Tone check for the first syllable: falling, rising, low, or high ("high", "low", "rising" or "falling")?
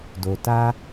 low